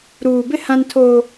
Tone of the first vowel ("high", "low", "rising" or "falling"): low